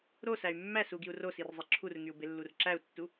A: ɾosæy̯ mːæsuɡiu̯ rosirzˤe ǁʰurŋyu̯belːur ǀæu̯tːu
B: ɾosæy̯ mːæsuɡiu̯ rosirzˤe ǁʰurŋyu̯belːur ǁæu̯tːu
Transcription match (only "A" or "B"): B